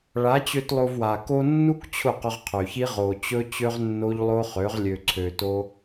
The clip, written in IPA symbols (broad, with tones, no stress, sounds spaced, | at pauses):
ɭ a˨˦ t͡ɕ ø˧ t lˠ o˧ v w a˨ k o˧ nː u˦ k t͡ɕʰ ʊ˦˨ q ʊ˧ ʁ qʰ ø˨ ç i˦ ʁ o˨ t͡ɕ ɵ˦ t͡ɕ ø˦ ʁ nː o˦ ʎ lˠ o˦ χ ø˨˦ ʁ lʲ ø˧ ǀʰ ø˧ t o˦